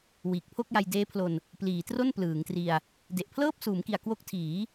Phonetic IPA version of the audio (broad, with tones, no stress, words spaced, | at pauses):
wiː˨˩k̚pʰo˥˩k̚ja˧j deː˦˥pʰlo˧n | pliː˩˦tro˥˩n plɯː˩˦ŋtri˧a̯ | de˨˩ʔpʰlɤː˥˩p̚suː˩˦mki˨˩a̯ kwo˦˥k̚tʰiː˩˦